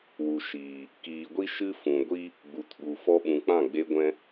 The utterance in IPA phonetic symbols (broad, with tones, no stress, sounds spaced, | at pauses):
w u˨ ʃ iː˨ | k iː˨ ɡʷ i˦ ʃ ɨ˧ f ũ˨ ɡʷ i˦ | ɡ͡b u˨ t ɓ u˨ f ɔ˧ ɓ ũ˨ k͡p ã˦˨ ɡ͡b e˧ ɡʷ ɛ̃˦